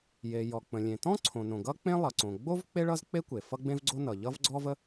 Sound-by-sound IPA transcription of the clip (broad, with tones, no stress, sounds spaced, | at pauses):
j e˩ j ɔ˩ k͡p ə̃˩ lʲ ẽ˩ t ɔ̃˥ ǀʰ õ˩ n õ˩ ɡ ʌ˥ k͡p ẽ˥ lˠ ʌ˩ ǀ õ˩ ɡ͡b o˥ v k͡p e˥ ɭ ʌ˥ z k͡p e˥ kʷ e˩ f ʌ˥ ɡ͡b ẽ˥ v ɡ͡ǀ o˥ n ʌ˩ ʎ ʌ˥ v ɡ͡ǀ ɔ˥ v ə˥